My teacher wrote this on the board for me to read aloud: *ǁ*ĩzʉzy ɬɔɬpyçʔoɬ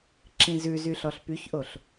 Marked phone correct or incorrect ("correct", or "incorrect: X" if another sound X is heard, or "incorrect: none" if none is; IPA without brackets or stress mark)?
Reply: correct